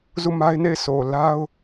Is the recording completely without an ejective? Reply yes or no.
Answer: yes